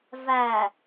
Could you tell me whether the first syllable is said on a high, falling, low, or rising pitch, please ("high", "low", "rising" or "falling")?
low